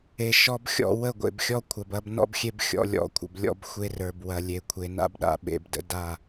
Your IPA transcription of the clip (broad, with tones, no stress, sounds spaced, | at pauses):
e˨ ʃ ɔ˦ b xʲ ɔ̰˦˨ w ə˦˨ ɡʷ ḛ˨ b xʲ ɔ˦ kʷʰ ɐ˨ b ɐ˦ b n ɔ̰˦ b xʲ e˦ b xʲ ɔ̰˨ lʲ ɔ̰˨ kʷʰ ə̰˨ b lʲ ɔ̰˦ b xʷ e˦ r ə˞˨ b w ɐ˨ lʲ e˨ kʷʰ e˨ n a̰˦ b ɗ a̰˨ ɓ ḛ˨ b d ə̰˦ d a˦˨